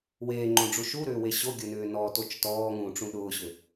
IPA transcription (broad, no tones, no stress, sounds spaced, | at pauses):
w eː ŋ͡ǃ õ ɖ͡ʐ u ʃ u ɾ ʏː w e ɕ o ɡʲ ʊ n ʏː n ɔ t o t͡ʃ t ɔː ŋ ũː ʈ͡ʂ ũ ɗ ʊː ɕ ʏ